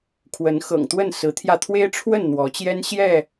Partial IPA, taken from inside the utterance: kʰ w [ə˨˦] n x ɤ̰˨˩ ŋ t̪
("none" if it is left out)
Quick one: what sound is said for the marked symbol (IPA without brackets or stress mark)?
ə˨˦